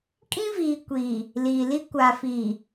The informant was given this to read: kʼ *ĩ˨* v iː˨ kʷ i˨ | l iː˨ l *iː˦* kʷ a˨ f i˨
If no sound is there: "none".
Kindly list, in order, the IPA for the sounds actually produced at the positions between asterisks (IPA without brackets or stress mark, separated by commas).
ĩ˦, i˦